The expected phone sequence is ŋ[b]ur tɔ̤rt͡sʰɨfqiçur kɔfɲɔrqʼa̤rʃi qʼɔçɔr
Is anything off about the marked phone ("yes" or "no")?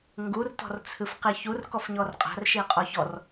yes